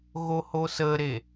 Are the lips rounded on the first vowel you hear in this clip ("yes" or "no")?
yes